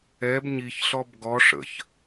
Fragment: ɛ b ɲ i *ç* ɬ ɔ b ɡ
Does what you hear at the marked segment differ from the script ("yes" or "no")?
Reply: no